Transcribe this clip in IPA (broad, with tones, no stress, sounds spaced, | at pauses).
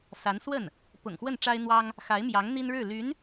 s a˧˥ n s w ə˥˩ n | p ʊ̰˨˩ ŋ x w ə˥˩ n ʈ͡ʂ a˥ ɪ̯ n̪ w ɑ˥ ŋ | x a˧˥ ɪ̯ m j ɑ˧˥ ŋ n̪ i˥ n ɻ ɻ̩˥˩ l y˧˥ n